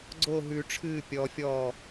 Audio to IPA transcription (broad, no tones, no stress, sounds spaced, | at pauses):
ɡ͡ǀ o ɦ ʉ ʈ͡ʂʰ ɨː pʲ ɔ fʲ ɔː